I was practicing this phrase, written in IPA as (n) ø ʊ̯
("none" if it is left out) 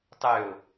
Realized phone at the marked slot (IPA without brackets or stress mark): tˤ